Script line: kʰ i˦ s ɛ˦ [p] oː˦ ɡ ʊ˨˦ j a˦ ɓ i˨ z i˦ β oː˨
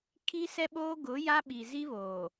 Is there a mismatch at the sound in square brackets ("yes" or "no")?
yes